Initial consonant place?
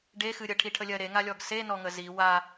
retroflex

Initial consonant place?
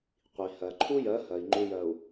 uvular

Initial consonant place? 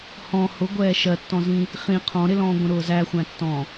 glottal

